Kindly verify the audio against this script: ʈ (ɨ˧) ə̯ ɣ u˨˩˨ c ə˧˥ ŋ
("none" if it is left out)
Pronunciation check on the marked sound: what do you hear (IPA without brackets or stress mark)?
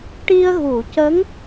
i˧